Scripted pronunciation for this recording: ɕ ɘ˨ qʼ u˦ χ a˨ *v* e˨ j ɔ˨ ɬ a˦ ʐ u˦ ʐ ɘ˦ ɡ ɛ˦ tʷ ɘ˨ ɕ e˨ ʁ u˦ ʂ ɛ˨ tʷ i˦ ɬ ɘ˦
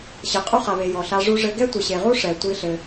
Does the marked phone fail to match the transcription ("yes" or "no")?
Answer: yes